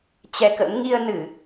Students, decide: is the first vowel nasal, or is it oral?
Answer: oral